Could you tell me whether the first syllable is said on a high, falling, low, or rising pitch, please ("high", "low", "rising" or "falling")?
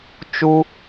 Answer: high